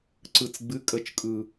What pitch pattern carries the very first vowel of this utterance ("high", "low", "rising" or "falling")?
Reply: low